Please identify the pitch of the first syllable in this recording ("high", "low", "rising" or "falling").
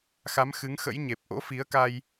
rising